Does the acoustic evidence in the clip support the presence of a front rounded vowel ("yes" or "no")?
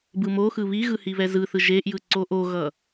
no